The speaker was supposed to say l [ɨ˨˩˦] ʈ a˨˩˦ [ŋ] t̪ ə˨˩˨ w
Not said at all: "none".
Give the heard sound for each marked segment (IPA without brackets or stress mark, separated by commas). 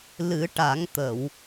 ɨ˨˩˦, ŋ